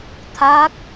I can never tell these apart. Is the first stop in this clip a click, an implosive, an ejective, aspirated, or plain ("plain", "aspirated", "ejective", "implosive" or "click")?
aspirated